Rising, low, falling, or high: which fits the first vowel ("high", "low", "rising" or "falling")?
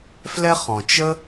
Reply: high